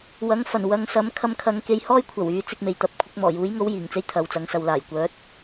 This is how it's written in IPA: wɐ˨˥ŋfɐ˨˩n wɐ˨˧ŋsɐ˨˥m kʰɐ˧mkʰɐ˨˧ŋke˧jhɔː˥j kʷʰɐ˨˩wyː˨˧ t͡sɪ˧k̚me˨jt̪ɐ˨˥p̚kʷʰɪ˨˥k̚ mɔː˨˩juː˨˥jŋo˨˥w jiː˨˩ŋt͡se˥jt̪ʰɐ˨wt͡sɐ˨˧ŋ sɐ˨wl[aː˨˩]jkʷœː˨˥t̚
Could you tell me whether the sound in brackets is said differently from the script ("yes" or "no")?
no